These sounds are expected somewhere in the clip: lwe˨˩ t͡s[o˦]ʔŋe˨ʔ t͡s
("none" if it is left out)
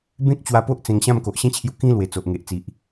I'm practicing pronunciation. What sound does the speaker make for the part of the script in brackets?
o˨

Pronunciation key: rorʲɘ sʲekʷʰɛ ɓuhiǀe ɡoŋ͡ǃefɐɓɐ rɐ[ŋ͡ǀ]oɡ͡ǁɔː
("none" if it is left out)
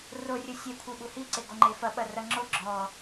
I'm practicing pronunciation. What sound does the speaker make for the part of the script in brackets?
ŋ͡ǁ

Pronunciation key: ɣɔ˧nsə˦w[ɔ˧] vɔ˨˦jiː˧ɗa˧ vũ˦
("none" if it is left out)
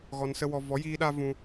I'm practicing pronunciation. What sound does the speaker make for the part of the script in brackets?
ɔ˧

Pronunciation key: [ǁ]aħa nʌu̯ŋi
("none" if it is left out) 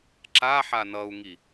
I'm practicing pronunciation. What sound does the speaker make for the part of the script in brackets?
ǁ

